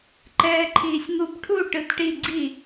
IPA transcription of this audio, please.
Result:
ǃ ɛː ǃʰ iː sʲ ŋ u b ʈʰ u ʈ ɯ t ʈ i ɡ͡ǀ i

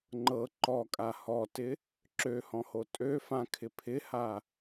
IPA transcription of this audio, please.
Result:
ŋ͡ǃ ɤ ǃ ɔ kʼ a h ɔ t ɪ | ǁ ø h ɔ̃ h o tʼ ø f ã kʰ ɪ pʰ ɪ h a

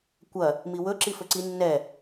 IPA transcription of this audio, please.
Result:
kʷ ɐ | m i w ɵ ǁ i f ɵ ǀ i nː ɛ

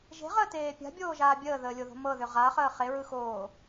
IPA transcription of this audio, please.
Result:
ʒ e̤ ʁ əː t eː pʲ a̤ bʲ oː ʒ aː bʲ əː ð əː lʲ o ð o̤ m ɤ ð ʏ ʁ a χ əː χ e ɹ ɯ x oː

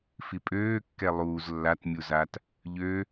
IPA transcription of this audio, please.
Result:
f i pʼ øː kː ɛ lˠ uː z lː a t mʲ u z a t | ʎ ø

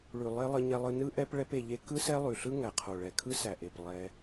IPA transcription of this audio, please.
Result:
ɭ ʉ˨ lˠ e˧ lˠ ə˧ ɲ ɛ˧ lˠ ɯ˧ n ɯ˦ ʔ ɛ˦ p ɭ ɛ˦ p e˧ ʎ e˦ k ɯ˦ s ɛ˦ lˠ ʉ˨ ɬ ɯ˦ ŋ æ˨ qʰ o˨ ɭ ɛ˨ kʰ ɯ˦ s æ˨ ʔ e˨ p lˠ ɛ˧

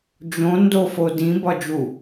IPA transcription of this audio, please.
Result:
d͡ʒ õ n d o f o d ĩ b ɒ d͡ʒ u

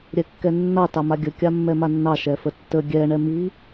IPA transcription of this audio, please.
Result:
ɾʲ ɛ kː ɛ nː ɑ t ɑ m a ɡʲ ə kʲ a mː ɛ m a nː ɑ ʃ ɛ f ə tː ə ɡʲ ɛ ɳ ɛ m i

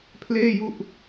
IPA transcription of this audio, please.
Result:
pʰ l eː˥˩ j u˥˩ ʔ

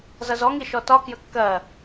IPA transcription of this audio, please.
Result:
z ʌ z ɔ ŋ i ʃ ɔ t ɒ k j ə kː ɜ

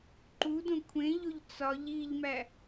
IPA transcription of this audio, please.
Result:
ǃ u d õ kʷʰ ẽ ʎ o ʎ t͡s ɒ ʎ i ʎ m æ

